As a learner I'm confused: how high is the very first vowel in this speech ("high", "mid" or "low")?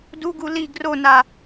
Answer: high